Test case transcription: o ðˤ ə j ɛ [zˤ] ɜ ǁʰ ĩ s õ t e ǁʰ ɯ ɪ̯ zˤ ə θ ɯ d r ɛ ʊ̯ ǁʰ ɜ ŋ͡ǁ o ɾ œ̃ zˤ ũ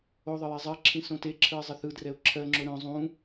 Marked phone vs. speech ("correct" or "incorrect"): correct